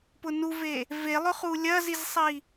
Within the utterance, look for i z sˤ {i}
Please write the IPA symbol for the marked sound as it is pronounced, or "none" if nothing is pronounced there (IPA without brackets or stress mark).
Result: i